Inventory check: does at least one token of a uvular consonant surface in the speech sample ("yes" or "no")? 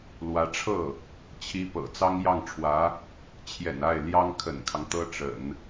no